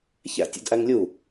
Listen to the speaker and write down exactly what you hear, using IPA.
ç æ̰ tʲ ə̰ d ʔ æ ŋ lʲ u

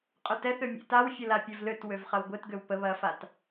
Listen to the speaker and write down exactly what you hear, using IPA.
qʼ ʏ t ɛ θ ø mʲ ḛ t a w fʲ ə l a pʲ œ v l ø t w ø v χ ɐ w ɡʷ e t ɡ ø w p ə β ɐ f a t

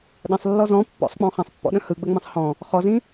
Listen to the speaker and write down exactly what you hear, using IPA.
ɗ ə̃ sˤ lː ɔ z ɔ̃ pː ɔ̰ sˤ k͡p ɔ̃ χ ɐ̃ sˤ pː ɔ̰ ɗ ə̃ h ɯ ɡ͡b ə ŋ͡m ə̃ sˤ h ɔ̃ | χ ɔ z ĩ

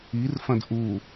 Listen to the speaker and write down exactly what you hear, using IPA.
i r f ɐ̃ d ʔ u

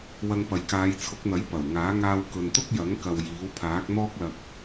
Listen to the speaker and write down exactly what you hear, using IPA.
w ɐ˧ ŋ p ɐ˨ j k aː˨˧ j t͡sʰ ʊ˨˥ k̚ n̪ ɐ˨˥ j p ɐ˨˩ w ŋ aː˨˥ ŋ aː˧ w k ɵ˨ n t̪ ʊ˥ k̚ j ɐ˨˥ ŋ k ɐ˨ w j iː˨˥ w pʰ aː˨˥ k̚ n̪ ɔː˥ k̚ l ɐ˧ k̚

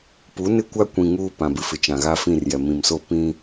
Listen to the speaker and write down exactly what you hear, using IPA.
p u˨˦ n ɪ˦˨ kʷ a˦ kʷ ĩ˨ ŋ uː˦ p ã˨ b ɪ˨ f ɪ˨ t͡ʃ ã˨ ɣ a˦ f ĩ˦˨ r j ɛ˨ m ĩ˨ m s o˦˨ p ĩ˦

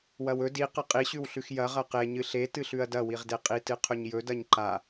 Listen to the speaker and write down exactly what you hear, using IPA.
w ɐ w ɵ d i q ɐ qʼ i ɕ ʉ w ɬ ʉ x j ɐ ʁ ɐ q e ɲ ɨ ɬ e t ɨ ɬ ʉ ɐ̯ d ɐ w i ʁ d e qʼ i t ɨ qʰ ɵ ɲ j ɵ d ɐ ɲ ǃ a

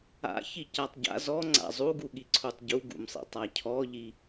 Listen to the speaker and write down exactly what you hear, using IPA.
a̰ ç i c a tˤ ɟ a̰ z ɔ ŋ͡ǀ a̰ zˤ u ɡ u ɠ i ǀʰ u tˤ ɟ u ɡ ṵ m sˤ ḭ tˤ a cʰ ɔ ʎ i

